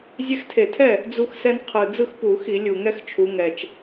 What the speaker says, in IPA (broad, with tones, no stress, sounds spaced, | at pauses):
zʲ ɛ˦ x tʰ e˧˩˧ tʰ ɛ˥˩ | d͡z u˦ x s ɛ˦ n qʰ ɯ˨˩ d͡z ɯ˥˩ x p u˧˩˧ x i˧˩˧ lʲ u˨˩ ŋ ɛ˦ x t͡ʃʰ u˩˧ ŋ ɛ˨˩ t͡ʃ